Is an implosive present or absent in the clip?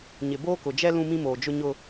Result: absent